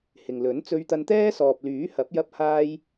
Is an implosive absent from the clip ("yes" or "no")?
yes